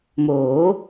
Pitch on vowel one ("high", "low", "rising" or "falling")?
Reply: rising